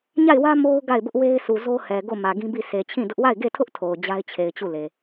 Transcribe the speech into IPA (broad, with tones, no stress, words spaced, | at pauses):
ɲa˦˨ɪ̯wä˦ mo˦ʊ̯ ɡa˦˨ɪ̯bʊ˦ʔ we˦ɪ̯su˨zo˦ hɛ˨ɡo˦˨ mä˨ɡĩ˦bi˦˨ sʰe˨t͡ɕʰĩ˦˨dʊ˦ʔ wa˦˨ɪ̯ɡe˦˨tʰʊ˦ʔ tʰo˨ʊ̯d͡ʑa˦ɪ̯t͡ɕʰe˨ɪ̯ t͡ɕu˦˨le˨